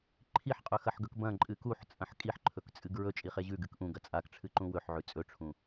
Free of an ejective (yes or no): no